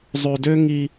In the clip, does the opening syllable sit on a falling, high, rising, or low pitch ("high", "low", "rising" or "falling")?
low